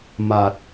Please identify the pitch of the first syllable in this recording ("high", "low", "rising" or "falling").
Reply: low